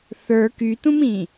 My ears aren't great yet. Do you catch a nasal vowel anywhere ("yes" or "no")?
yes